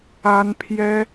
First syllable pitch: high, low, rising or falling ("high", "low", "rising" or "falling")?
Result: high